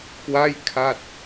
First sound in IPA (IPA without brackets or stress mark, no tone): k